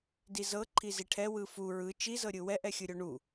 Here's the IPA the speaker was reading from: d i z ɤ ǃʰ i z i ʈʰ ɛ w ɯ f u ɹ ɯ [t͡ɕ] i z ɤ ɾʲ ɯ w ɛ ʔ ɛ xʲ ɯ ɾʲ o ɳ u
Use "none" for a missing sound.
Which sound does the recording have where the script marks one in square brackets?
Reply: t͡ʃ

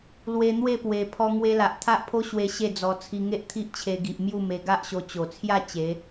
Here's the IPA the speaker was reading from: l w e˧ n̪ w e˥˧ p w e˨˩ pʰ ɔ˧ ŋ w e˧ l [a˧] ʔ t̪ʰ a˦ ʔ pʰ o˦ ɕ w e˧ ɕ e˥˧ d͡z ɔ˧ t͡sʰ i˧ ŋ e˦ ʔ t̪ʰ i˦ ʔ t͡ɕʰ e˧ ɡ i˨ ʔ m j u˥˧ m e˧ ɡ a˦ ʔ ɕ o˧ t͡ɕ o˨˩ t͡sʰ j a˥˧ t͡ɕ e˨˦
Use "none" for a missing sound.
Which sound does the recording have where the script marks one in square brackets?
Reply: a˨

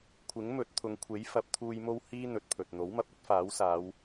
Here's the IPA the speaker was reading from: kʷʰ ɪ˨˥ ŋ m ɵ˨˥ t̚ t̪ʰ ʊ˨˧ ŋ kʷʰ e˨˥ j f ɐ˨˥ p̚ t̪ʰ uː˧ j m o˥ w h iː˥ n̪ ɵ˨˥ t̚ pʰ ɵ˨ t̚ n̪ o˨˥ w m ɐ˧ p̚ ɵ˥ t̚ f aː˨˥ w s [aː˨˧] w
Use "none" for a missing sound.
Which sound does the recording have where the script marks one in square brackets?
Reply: aː˨˧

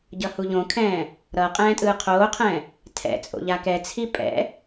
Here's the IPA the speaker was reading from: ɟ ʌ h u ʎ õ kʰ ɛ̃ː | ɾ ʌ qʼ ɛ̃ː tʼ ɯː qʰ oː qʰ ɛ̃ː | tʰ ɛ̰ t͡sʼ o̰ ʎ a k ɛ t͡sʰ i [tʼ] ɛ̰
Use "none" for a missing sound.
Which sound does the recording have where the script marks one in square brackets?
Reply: pʼ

